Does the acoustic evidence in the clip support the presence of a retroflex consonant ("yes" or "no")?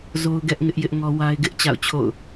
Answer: no